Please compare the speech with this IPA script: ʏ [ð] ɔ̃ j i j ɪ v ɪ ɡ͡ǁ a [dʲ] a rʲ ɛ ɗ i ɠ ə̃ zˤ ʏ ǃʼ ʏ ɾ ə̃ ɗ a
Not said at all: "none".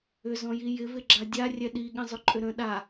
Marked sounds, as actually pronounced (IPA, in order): z, dʲ

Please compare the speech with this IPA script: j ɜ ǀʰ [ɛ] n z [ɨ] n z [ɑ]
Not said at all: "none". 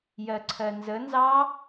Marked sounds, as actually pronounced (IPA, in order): ɜ, ə, ɑ

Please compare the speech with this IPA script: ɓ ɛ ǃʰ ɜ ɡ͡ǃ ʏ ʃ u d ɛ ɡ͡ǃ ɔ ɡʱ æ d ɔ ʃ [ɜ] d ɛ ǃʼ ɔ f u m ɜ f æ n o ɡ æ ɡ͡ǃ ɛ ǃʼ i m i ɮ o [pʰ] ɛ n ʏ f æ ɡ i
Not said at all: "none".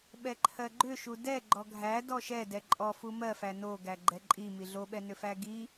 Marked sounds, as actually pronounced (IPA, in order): ɛ, ɓ

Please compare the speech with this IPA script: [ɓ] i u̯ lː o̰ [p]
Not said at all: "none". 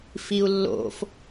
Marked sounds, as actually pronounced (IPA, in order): f, f

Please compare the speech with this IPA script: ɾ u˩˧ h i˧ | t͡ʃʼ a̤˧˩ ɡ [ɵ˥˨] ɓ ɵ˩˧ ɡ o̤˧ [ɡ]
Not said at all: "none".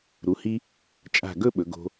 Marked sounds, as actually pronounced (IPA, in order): ɵ˥˨, none

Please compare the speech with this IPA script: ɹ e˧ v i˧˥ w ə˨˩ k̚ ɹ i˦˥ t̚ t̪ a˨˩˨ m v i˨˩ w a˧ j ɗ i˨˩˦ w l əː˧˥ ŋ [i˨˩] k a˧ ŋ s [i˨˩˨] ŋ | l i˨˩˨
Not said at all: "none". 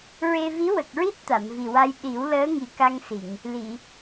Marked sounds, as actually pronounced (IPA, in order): i˨˩, i˨˩˨

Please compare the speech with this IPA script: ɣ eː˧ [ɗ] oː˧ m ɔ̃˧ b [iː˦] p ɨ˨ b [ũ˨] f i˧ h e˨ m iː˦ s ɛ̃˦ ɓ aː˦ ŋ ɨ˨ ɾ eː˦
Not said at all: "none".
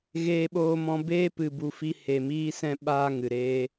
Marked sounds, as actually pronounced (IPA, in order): ɓ, eː˦, u˨

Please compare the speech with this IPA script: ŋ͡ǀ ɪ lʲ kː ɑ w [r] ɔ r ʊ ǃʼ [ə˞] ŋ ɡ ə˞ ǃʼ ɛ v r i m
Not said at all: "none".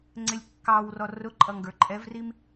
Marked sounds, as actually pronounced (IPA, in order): r, ʌ

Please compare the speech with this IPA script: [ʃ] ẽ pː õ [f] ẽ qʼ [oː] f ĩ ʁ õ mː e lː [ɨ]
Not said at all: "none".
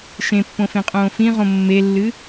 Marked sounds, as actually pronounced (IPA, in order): ʃ, f, õː, ɨ

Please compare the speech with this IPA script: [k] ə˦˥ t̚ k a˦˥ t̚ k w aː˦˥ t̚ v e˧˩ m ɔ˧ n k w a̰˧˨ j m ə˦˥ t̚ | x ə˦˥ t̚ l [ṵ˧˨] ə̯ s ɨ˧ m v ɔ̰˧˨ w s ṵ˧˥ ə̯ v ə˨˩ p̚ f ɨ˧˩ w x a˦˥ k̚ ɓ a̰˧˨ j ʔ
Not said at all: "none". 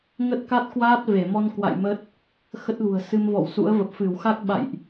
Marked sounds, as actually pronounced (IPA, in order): ŋ, ṳ˨˩

